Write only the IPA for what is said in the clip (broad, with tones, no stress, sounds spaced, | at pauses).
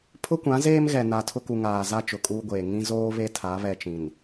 pʰ ʊ˦ kʷ ã˨˦ z eː˦ m ɣ ɛ˨ n a˨ tʰ ʊ˦ k u˨ ŋ aː˨ z a˦ t͡ʃ ʊ˨ kʼ uː˦ ɡʷ eː˨ ŋ ĩ˦ z oː˦ β e˦ tʰ a˨˦ β ɛ˦ t͡ʃ ĩ˨ n